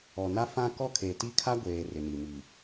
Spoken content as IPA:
ɔ˨ n a˦ f ã˦ k ɔ˦ kʰ e˨ t i˦ kʰ a˦ ɡʷ eː˨ r ɪ˨ n i˨ m i˨

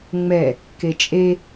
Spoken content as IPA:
ŋ͡m ɛ | k e t͡ʃʼ e

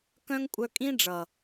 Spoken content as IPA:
k œ̃˧ ŋ kʷʼ œ˧ kʼ ĩ˦ ɖ͡ʐ ʌ˨

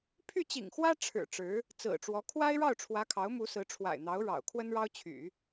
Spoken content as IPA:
pʰ y˥˩ t͡ɕ ḭ˨˩ ŋ x w ä˥ ʈ͡ʂʰ ɻ̩˨˩ ʈ͡ʂ ɻ̩˧˥ | t͡s ɹ̩˨˩ ʈ͡ʂ w ɔ˧˥ kʰ w a˥ ɪ̯ ɻ ɑ˥˩ ʊ̯ ʈ͡ʂʰ w ä˧˥ kʰ ɑ˧˥ ʊ̯ m u˧˥ s ɹ̩˧˥ ʈ͡ʂʰ w a̰˨˩ ɪ̯ n̪ ɑ˧˥ ʊ̯ ɻ ɑ̰˨˩ ʊ̯ kʰ w ə˥ n ɻ ɑ˥ ʊ̯ t͡ɕʰ y̰˨˩˦

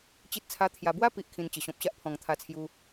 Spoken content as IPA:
t͡ɕ i˦ t̚ t͡sʰ a˦ t̪ʰ j a˧ b w a˦ p i˨ ʔ kʰ ĩ˧ n t͡ɕ ə˨˩ ɕ ɔ̃˨ p̚ ɕ a˦ ʔ pʰ ɔ̃˨˩ ŋ t̪ʰ a˧ t͡sʰ j u˧

